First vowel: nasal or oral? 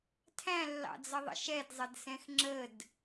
nasal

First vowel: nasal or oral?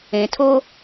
nasal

